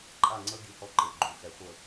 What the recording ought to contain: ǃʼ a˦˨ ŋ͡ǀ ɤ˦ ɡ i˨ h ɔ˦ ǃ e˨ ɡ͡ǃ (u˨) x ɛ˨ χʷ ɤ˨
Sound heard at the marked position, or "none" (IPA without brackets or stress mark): u˨